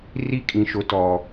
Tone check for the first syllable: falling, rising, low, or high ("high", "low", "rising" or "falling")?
high